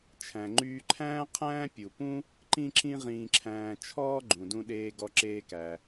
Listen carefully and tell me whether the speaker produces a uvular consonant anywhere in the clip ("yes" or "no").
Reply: yes